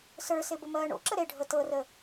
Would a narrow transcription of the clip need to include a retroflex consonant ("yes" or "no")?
yes